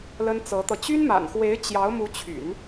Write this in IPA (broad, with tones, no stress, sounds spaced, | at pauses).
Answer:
l ə˥ n t͡s ɤ˧˥ t̪ ɤ˧ t͡ɕ y˥ n m a̰˨˩ n x w e˧˥ ɪ̯ t͡ɕ j ɑ˧˥ ʊ̯ m u˧˥ t͡ɕʰ y̰˨˩˦ n